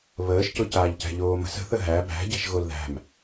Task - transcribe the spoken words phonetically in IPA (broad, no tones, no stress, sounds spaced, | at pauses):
β əː ʃ c ʊ c aː ʎ c æ̤ ʎ oː m ə̤ s ə̤ θ ə ɦ æ b æ̤ ɟ æ̤ ʃ ɣ o l ð æ̤ m